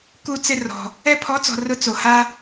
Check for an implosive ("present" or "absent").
absent